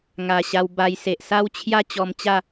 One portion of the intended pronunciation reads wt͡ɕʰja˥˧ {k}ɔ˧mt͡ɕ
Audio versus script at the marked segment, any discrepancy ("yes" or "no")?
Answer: yes